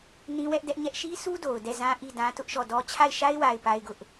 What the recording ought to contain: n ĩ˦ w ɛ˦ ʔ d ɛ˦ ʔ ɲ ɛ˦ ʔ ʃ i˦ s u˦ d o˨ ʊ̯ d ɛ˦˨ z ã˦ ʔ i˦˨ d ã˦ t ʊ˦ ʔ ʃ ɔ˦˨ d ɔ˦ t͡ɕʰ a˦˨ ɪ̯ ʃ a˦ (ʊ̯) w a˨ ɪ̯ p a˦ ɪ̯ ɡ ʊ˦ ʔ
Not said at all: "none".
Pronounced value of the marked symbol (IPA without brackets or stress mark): ɪ̯